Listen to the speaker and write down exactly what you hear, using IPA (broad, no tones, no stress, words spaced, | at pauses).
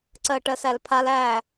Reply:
ǀɜʈɜsælpʰal æ